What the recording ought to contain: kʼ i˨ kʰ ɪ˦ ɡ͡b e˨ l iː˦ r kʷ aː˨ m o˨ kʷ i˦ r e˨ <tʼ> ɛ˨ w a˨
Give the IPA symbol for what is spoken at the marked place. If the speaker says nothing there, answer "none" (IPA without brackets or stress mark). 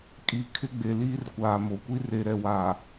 ɾ